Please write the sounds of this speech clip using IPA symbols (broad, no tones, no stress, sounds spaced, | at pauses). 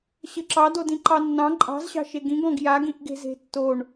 ɕ ɘ ǁ ɑ d o d ĩ ǃ ɑ nː ɑ̃ ǃʼ ɑ̤ z ɕ ɑ̤ ʃ e ɡ ĩ ɡ ɔ̃ ɡ j a ɡ ĩ ʔ ɡ e̤ z e̤ tː o ɳ